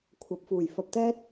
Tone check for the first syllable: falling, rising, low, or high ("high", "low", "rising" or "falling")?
low